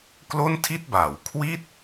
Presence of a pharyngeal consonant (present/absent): absent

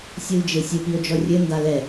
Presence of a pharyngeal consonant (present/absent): absent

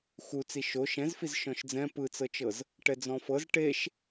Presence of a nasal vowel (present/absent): present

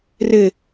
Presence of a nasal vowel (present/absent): absent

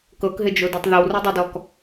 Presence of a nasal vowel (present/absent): absent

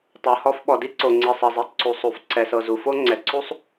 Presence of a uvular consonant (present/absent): absent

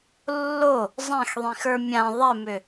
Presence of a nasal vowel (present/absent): present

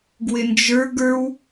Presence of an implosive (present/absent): absent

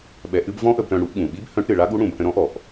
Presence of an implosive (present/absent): present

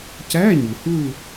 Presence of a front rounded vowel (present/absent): absent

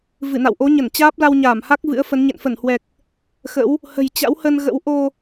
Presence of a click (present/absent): absent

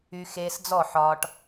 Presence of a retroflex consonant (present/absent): present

